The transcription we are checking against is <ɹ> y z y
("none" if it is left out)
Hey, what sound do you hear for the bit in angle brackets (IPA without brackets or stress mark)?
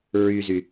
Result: ɹ